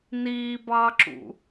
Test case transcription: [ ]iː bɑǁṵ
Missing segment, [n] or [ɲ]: n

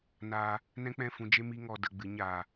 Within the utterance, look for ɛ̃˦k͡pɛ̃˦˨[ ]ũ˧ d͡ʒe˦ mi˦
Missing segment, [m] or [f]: f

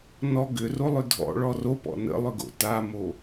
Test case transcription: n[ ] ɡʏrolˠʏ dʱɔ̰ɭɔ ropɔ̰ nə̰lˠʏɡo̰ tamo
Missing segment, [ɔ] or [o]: ɔ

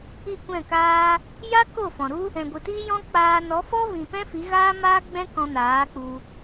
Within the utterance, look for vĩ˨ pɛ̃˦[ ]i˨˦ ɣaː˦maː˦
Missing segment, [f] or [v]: f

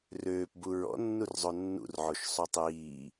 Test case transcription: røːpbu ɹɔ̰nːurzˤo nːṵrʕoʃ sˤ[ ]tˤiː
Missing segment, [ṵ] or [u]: u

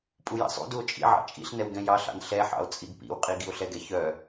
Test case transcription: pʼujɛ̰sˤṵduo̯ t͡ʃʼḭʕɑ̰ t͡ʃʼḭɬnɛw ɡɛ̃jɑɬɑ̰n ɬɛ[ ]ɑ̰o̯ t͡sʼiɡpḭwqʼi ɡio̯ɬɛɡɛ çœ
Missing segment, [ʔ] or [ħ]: ħ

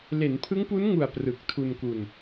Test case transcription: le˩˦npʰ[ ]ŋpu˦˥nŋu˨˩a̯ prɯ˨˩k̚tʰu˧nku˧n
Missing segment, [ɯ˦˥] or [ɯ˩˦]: ɯ˦˥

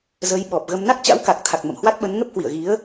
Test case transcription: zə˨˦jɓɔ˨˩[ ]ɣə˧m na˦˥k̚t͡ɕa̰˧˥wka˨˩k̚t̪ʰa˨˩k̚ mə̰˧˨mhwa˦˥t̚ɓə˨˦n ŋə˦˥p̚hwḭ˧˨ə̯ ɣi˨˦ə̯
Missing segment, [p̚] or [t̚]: p̚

